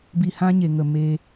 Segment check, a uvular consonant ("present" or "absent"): absent